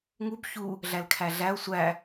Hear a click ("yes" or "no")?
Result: no